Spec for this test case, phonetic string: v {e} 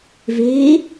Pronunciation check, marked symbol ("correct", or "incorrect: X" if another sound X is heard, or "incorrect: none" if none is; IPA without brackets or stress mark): correct